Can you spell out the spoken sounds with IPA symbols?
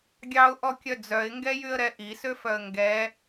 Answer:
ɡʲ ɑ ʊ̯ ʔ ɔ kʲ œ d͡z œ ɪ̯ ŋ ɡ ɛ j y ə̯ ɾ ɛ ʔ i s ø f œ ə̯ ŋ ɡ ɛ

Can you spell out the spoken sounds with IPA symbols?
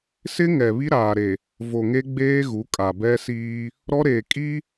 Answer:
s ɪ˦ ŋ ɛ˨ β i˦ ɾ aː˨ ɾ e˨ | v o˨ ŋ e˦ ɡ͡b eː˦ ɣ u˨˦ kʼ a˨ b ɛ˦ s iː˦ | ɾ ɔ˦ ɾ eː˨ kʼ i˦

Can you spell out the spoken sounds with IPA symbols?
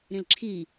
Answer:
ɾ ĩ l ǁʰ i

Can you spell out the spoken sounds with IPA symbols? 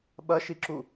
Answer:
ɓ ɐ ʃ i ǁ u

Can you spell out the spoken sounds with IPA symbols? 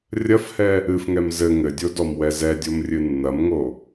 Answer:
rʲ ɐ f h ɛ | ɨ f ŋ ɛ m z ɘ ŋ ɘ dʲ o d ɔ m w ɛ z ɛ dʲ o m rʲ ɨ nː ɐ m ŋ o

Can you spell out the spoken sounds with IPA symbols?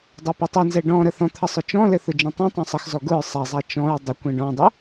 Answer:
dˤ a p e tˤ ɘ n z ɛ ɖ ɔ̃ ɾ ə θ ɔ̃ t̪ʰ ə sˤ ʊ t͡ʃ ɔ̃ l ɘ θ ʊ d͡ʒ ɛ̃ tˤ ɛ̃ tˤ ɛ̃ sˤ ə x z ɔ ɡ ʊ ɹ sˤ ɛ zˤ a t͡ʃ ɔ̃ ɹ dˤ ʊ kʷ ɛ̃ ɖ ɔ̃ dˤ ʊ

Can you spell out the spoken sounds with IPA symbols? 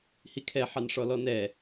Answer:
h i kʰ ɛ ħ ɑ n ʂ ɔ l ɔ n ɛ

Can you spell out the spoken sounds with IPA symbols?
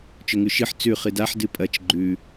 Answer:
t͡ʃ ɵ ŋ ʉ ʃ ɨ ħ t͡s ʉ χ ɨ d a ħ d ɨ pʼ ɐ t͡ʃ ɡ͡ǃ ʉ

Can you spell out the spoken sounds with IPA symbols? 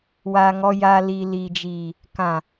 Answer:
w a˨ ŋ ɔ˨ j a˨ l i˨ l iː˨ d͡ʒ iː˨ | k ã˨

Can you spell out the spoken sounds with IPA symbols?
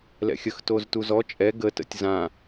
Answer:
l ɛ̰ xʲ ə x t o z t u z ɔ t͡ʃʼ ɛ ɡ ə t ə̰ tʲ z ã

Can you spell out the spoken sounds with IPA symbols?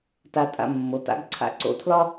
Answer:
t a˧ tʼ a̰˧ mː o˩˧ t a̰˥ ɡ ǀʰ a̰˧˩ ǀ o̰˧ tʰ l ɒ˥

